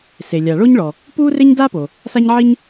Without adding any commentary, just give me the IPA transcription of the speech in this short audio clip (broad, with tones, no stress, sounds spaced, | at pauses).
s e˩ lʲ a˩ ɭ o˥ ɲ ɭ ɔ˩ | p u˥ r e˥ ɲ d a˥ p o˩ | s a˥ ɲ ʕ i˥ ɲ